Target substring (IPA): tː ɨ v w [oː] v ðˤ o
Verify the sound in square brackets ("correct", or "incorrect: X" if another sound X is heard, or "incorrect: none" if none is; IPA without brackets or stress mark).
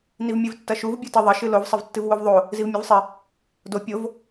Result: incorrect: o